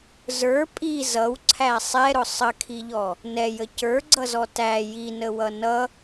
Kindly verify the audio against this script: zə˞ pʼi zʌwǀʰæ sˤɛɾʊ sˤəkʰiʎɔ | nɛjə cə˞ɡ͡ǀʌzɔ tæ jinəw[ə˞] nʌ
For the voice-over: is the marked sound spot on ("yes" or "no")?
no